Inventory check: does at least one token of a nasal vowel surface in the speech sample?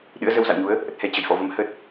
no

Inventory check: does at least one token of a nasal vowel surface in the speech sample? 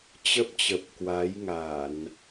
no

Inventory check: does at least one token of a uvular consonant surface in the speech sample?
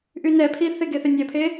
no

